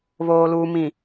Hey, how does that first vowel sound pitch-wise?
low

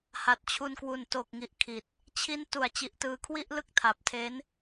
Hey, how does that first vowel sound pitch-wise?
low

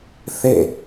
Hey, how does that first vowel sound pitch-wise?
falling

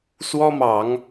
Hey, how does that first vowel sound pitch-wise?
high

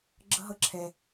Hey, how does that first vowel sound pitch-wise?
high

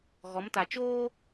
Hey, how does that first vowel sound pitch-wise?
rising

